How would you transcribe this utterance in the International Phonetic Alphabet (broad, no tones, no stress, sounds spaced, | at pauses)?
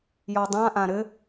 j ɔ dˤ ã ʔ ã ɾ ɘ